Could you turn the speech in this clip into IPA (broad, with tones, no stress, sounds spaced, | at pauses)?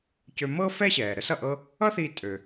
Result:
c ø˧ m ɤ˥ f ɛ˥ ɕ ɛː˩ ɾ ə˥ s ʌ˩ ʔ ɤ˥ | ʌ˥ θ i˧ tʼ ø˩